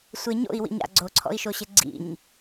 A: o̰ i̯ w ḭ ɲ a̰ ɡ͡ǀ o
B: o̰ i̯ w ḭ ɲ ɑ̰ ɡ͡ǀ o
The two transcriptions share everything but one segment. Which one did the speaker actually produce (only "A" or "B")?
A